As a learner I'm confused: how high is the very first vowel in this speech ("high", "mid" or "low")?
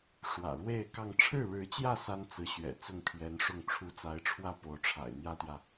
low